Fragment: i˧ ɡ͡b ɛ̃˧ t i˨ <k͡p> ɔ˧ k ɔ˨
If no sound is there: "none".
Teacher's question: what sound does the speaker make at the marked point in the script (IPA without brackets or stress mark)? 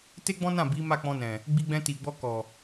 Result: ɡ͡b